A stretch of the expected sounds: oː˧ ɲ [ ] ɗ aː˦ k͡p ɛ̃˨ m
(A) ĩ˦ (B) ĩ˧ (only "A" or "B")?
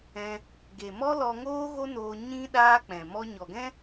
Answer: A